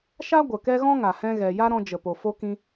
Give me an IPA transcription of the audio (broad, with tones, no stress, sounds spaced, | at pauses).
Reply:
ʃ a˦ ɡʷ ə˨ k ɛ˦ ɣ ɔ̃˦ ŋ a˨ h ɛ̃˧ ɣ ɛ˨ j a˦ ɾ ɔ̃˧ d͡ʒ ə˨ p o˨ f o˧ k ĩ˧